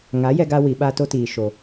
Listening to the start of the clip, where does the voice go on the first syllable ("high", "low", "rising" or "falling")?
rising